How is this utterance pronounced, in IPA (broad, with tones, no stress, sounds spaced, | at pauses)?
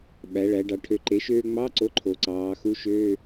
ɓ æ˩˧ ɭ æ˩˧ ɖ ɑ˩˧ ʈʰ ø˩˥ ǃ e˩˥ ʃ øː˧ ŋ͡m ɑ˧˥˧ ǀ o˧˥˧ ǃʰ o˩˧ ǀ ɑː˩˧ x u˧˥˧ ʃ øː˧˥˧